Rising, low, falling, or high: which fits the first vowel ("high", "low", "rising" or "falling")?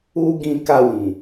high